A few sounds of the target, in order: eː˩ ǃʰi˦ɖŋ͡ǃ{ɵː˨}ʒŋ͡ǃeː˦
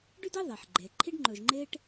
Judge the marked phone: correct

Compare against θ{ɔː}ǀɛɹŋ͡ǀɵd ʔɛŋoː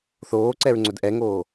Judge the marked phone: incorrect: oː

